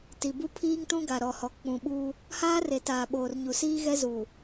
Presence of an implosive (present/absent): present